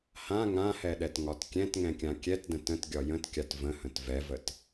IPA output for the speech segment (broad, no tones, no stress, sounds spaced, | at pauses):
h ã ŋ ã h ɛ ɗ ɛ t ŋ ɒ t kʲ ɛ̃ t ŋ ɛ̃ kʲ ã kʲ ɛ t d ə̃ t ə̃ t ɡʲ ɒ j ə̃ t kʲ a t v ə̃ h ə̃ t v ɛ v ə t